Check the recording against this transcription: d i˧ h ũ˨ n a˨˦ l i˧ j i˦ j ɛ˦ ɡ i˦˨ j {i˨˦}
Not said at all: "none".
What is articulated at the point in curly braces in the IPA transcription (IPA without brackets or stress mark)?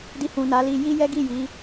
i˨˦